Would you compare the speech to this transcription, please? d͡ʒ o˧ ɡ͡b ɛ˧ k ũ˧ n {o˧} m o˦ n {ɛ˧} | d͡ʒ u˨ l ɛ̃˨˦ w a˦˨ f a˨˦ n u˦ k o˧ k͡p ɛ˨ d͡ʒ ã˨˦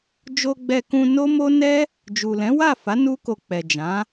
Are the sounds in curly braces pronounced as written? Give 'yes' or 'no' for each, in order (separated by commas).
no, no